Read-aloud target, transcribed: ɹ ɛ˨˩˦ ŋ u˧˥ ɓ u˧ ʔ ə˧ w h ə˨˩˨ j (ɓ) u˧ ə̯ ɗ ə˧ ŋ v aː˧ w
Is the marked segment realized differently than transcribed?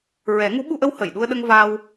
yes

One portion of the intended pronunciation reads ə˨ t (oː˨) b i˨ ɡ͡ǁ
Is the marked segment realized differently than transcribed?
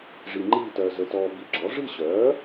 yes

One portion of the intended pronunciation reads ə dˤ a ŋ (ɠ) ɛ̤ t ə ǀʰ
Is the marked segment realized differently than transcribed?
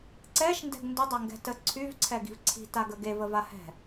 yes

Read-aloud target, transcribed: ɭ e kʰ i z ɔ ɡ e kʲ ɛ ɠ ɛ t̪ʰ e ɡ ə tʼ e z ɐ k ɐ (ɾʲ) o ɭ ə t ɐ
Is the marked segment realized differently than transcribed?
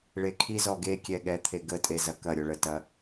no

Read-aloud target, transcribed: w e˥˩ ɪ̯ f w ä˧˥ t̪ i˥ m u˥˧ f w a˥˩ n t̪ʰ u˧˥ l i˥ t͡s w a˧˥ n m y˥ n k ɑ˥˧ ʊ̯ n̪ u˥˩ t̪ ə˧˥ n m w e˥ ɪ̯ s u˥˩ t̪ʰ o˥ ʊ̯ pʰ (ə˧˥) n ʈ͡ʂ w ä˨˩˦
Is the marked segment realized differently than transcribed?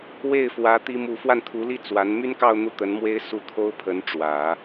no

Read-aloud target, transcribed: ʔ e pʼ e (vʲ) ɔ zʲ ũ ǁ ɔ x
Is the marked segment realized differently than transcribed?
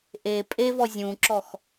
yes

